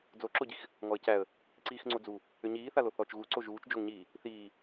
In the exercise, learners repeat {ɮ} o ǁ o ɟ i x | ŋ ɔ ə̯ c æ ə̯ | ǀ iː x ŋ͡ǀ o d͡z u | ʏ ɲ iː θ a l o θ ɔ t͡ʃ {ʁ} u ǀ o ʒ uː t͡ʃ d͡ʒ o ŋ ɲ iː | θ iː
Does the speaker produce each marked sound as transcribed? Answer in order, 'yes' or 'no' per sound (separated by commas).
no, no